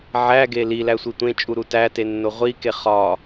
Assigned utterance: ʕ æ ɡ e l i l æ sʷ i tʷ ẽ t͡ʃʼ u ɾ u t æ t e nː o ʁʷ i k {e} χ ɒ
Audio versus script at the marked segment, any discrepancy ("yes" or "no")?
no